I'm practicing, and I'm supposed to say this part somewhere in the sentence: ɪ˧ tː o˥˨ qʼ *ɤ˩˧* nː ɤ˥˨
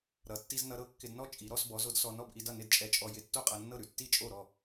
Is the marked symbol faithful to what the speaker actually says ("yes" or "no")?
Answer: no